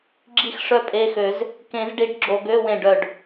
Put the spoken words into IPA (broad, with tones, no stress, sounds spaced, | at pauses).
ɡ͡ǁ i˥˩ x ʂ œ˥˩ pʼ e˧˥˧ x ø˨˩˦ z | k ẽ˨˩˦ z ɖ i˨˩˦ ɖ ɡ͡ǁ o˨ ɡ ø˧˥˧ w ẽ˥˩ ɖ œ˥˩ ɖ